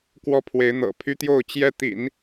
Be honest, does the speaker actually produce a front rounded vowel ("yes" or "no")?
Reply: yes